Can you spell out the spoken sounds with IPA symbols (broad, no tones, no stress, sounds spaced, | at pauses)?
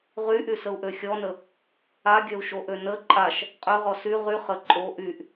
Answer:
ʁ y ʔ y s ə u̯ ʔ ø xʲ ɔ n ə | a ɡʲ œ u̯ ʃ o ʔ ø n ə ǃʼ a ʃ | qʼ ø ʁ ɔ s y ʁ y χ ə ǃʼ o ʔ y ʔ